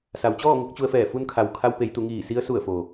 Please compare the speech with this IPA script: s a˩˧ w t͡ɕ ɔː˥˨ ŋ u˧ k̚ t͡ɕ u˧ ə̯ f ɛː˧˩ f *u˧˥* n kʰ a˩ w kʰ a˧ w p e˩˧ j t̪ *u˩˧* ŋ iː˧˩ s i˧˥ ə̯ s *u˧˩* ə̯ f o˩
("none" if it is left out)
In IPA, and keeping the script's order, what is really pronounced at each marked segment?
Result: u˧, u˩˧, u˧˩

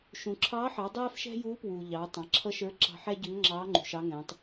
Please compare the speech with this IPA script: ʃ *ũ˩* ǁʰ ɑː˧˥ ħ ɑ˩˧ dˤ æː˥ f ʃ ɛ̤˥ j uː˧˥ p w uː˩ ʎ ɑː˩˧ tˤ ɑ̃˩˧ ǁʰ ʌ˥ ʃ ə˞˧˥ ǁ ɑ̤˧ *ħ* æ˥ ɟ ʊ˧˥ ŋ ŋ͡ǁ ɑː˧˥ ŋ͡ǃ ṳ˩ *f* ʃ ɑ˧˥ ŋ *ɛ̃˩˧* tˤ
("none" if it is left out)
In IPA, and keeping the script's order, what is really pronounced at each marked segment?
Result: ũ˩, ħ, none, ɛ̃˩˧

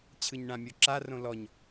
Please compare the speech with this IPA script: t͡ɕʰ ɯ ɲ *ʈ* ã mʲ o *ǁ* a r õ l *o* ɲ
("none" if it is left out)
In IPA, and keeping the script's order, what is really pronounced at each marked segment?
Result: ɳ, ǁ, ɔ

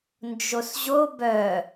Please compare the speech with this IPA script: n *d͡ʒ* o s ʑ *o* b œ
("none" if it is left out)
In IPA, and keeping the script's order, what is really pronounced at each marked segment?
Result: d͡ʒ, o

